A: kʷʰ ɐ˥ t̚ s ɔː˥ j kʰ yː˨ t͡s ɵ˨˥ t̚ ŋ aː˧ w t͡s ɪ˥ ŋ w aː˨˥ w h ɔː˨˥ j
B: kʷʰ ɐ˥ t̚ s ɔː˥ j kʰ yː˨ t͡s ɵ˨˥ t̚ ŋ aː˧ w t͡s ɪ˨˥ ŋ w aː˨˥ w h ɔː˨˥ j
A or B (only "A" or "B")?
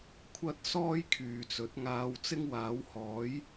A